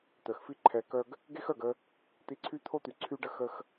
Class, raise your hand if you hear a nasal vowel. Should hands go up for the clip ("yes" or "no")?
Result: no